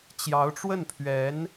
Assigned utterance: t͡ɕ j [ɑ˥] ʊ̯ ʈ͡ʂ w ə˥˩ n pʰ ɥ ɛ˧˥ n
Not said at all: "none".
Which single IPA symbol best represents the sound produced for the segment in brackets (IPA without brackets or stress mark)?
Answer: ɑ˧˥